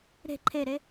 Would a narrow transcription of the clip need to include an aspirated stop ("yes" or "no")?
yes